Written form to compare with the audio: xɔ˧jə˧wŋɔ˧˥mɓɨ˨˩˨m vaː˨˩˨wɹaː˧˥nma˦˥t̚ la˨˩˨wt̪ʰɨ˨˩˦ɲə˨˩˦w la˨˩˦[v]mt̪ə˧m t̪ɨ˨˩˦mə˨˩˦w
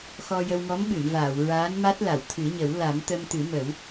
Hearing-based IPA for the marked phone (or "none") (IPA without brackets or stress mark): none